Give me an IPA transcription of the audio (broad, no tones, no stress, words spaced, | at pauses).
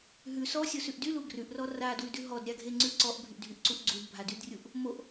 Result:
ɦʉ sɔsʲosʉʔ dylu ɡrʉʔrɔ radwʉdʉ ɦɔdɾʲaɡʱeŋ͡ǀʉ ǀɔʔbʱyʔdʱyʔǀuʔ ɡ͡ǀudbʱadydrʲuʔ | moʔ